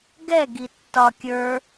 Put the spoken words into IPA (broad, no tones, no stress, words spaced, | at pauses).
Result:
ɡɛ ɡitːɒ kʲə˞